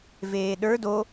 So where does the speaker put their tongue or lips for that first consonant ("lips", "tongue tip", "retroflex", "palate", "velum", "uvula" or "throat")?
lips